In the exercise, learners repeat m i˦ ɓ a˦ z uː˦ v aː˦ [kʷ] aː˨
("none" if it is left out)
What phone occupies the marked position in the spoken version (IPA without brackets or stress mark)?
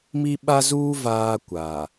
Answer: kʷ